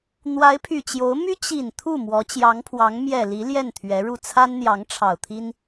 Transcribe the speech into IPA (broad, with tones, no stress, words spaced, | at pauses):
n̪wa˧˥ɪ̯pʰy˨˩ t͡ɕjo˧˥ʊ̯ my˥ t͡ɕi˨˩n t̪ʰu˥˩mwɔ˧˥ t͡ɕjɑ˧˥ŋpʰwɑ˧˥ŋ mjɛ˨˩ li˧˥ ljɛ˥˩nt̪ʰɥɛ˧˥ɻu˥˩ t͡sʰa˥nn̪jɑ˧˥ŋʈ͡ʂʰɑ˨˩ʊ̯t̪ʰi˥n